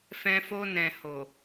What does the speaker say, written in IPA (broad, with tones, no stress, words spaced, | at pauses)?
fɛ̃˧fo˧nɛ̃˨ho˨